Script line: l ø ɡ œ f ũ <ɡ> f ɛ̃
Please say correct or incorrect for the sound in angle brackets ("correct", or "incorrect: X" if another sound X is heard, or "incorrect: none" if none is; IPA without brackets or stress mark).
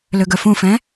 incorrect: none